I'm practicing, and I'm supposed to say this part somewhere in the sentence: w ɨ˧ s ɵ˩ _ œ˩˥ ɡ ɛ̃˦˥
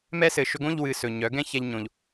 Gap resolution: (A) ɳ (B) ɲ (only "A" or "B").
B